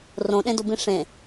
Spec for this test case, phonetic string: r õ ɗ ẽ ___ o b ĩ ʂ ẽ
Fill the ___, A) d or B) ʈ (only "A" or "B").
A